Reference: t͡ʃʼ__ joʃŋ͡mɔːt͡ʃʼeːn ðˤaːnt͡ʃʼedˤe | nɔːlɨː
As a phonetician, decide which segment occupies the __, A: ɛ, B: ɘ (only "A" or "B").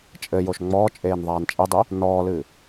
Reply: B